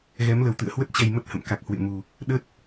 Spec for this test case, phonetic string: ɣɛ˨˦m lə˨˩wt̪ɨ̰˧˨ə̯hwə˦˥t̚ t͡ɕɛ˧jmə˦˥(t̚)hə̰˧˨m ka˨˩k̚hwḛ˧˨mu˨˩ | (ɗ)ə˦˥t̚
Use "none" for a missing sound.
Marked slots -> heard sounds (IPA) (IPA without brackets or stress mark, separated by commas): t̚, ɗ